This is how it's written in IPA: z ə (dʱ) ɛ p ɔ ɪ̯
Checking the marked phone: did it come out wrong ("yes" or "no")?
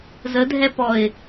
no